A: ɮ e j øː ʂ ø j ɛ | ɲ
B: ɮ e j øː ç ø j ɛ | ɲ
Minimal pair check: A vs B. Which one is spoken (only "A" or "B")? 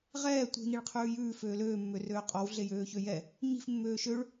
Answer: B